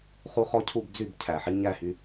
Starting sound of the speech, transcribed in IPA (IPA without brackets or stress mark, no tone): χ